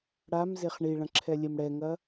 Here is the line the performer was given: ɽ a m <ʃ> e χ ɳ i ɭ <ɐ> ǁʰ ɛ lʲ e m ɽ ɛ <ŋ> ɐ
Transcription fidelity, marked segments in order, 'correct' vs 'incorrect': incorrect, incorrect, correct

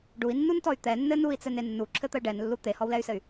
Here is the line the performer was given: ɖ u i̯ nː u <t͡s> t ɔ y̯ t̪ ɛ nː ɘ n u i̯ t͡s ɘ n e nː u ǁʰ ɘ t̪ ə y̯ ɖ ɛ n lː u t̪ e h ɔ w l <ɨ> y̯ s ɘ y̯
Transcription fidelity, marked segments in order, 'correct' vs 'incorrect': incorrect, incorrect

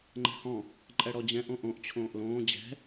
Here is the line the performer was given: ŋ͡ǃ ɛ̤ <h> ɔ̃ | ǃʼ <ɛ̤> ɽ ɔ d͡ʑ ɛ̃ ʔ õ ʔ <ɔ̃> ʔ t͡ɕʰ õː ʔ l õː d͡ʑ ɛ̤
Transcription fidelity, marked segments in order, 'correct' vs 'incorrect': correct, incorrect, incorrect

